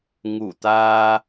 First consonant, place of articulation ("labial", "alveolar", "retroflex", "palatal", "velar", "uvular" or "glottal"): velar